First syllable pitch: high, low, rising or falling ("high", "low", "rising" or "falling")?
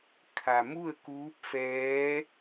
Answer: low